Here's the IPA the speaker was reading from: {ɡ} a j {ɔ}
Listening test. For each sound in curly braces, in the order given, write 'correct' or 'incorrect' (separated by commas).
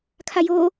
incorrect, incorrect